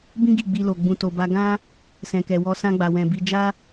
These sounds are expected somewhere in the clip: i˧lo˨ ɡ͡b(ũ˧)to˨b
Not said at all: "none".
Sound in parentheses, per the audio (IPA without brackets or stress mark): ũ˨